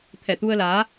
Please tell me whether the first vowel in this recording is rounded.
no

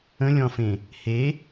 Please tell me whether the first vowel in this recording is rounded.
no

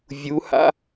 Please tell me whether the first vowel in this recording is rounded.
yes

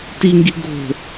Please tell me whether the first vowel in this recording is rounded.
no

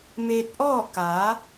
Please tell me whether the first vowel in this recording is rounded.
no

